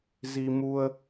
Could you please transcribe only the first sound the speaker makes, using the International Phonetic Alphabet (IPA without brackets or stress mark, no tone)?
z